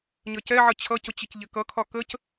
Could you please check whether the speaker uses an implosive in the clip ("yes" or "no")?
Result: no